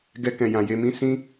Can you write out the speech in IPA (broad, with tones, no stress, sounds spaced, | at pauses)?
ɡ ɛ˧ k ɛ̃˨ j ã˨ j e˧ m ĩ˦ s ĩ˦